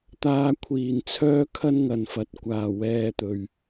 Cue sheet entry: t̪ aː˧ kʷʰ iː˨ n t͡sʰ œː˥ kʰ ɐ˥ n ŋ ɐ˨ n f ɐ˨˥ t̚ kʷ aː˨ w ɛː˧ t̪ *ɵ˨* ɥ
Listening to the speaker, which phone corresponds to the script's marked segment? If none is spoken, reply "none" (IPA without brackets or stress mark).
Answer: ɵ˨